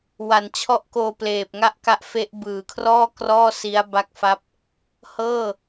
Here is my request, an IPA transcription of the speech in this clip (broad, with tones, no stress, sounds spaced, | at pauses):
w a˨˩ n t͡ɕʰ ɔ˥˩ ʔ k oː˧ p l eː˨˩ p̚ ŋ a˥˩ ʔ k a˦˥ ʔ f e˦˥ ʔ b ɯː˩˦ kʰ r ɔː˥˩ k r ɔː˥˩ s i˦˥ a̯ b a˦˥ k̚ f a˦˥ p̚ | h ɤː˥˩